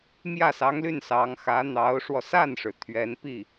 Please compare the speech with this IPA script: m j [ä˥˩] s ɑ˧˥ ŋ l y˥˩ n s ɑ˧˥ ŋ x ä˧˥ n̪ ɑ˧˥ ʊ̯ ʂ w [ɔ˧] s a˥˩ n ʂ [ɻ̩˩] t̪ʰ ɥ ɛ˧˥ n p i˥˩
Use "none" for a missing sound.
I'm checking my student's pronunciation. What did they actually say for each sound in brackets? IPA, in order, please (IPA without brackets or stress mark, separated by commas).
ä˥˩, ɔ˧, ɻ̩˩